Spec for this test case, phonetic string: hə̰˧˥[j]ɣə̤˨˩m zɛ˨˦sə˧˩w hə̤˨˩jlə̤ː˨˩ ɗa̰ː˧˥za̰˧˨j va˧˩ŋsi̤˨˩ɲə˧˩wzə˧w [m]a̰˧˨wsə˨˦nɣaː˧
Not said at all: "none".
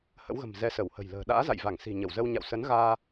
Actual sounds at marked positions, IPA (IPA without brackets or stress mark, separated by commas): w, ɲ